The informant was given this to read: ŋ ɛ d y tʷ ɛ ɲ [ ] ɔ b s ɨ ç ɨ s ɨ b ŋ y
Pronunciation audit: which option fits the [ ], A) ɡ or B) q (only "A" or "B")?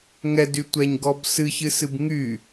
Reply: A